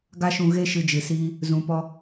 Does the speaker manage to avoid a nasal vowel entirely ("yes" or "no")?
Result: no